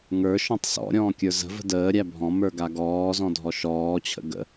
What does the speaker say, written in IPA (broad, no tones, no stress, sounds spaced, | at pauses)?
ŋ ə˞ ʃ ɔ̃ tˤ s ɔ̰ ɾʲ ɔ̃ː kʲ ə˞ z ə̤ v ə̤ d əː ɾʲ æ bʱ ɔ̃ m ə˞ ɡ a ɡ ɔː z ɔ̃ dʱ ɔ ʃ ɔː t͡ɕʰ ə̰ ɡ ə̰